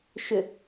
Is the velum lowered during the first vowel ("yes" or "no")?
no